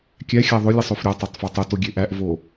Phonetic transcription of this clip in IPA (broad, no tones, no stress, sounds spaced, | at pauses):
kʲ æ xʲ æ ðˤ o lʲ e sˤ o f ɾʲ ɒ tˤ æ tˤ f ɒ tˤ o t o ɡʲ e ʔ æ ʔ v o